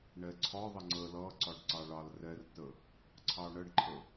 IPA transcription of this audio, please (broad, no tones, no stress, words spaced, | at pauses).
ɳɛǀʰɒ ðˤəŋ͡ǀə lʌǀɒɖ ǀɑɭɑlrɛrtə | ǀʰɑɳəɖǃʰə